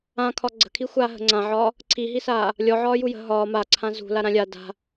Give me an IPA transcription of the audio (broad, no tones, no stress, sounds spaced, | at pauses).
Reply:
ã kʰ ɒ ɡ͡ǀ ə̤ kʰ i xʷ aː ɦ ə̤ ŋ͡ǀ ã ʕ ɒː | ǀʰ i ɦ i s aː | lʲ ɔ ʕ ɒː j u j ə̤ ɦ ɒː m a ǀʰ ã z ṳ l a ɾ ã lʲ a d a̤